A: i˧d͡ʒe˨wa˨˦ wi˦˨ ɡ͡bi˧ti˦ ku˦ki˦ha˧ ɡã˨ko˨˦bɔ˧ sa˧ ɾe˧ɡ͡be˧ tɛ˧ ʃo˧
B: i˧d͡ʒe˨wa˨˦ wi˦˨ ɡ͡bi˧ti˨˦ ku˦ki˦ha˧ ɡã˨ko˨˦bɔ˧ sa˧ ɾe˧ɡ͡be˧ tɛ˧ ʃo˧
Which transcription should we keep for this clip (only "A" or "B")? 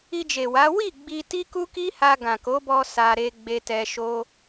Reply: A